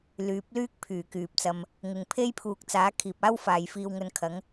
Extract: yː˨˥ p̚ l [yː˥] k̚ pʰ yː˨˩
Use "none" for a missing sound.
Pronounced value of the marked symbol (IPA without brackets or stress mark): yː˥